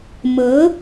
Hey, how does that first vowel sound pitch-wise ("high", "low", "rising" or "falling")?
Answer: rising